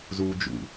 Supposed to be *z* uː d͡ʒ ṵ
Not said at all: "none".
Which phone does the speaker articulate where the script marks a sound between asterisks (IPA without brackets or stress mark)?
z